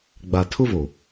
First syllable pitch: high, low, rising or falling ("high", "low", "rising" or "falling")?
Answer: low